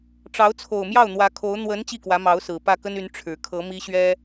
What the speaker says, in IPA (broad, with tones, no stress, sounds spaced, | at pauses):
ʈ͡ʂ ɑ˧˥ ʊ̯ t͡sʰ o˨˩ ʊ̯ m j ɑ˥˩ ʊ̯ n̪ w ä˧˥ kʰ o˧˥ ʊ̯ n̪ w ə˧˥ n t͡ɕ i˥˩ k w ä˧˥ m ɑ˧˥ ʊ̯ s ɹ̩˨˩ p ä˥˩ k ə˥ n y˧˥ n ʈ͡ʂʰ ɻ̩˨˩ kʰ ɤ˧˥ m i˥ ɕ ɥ ɛ˥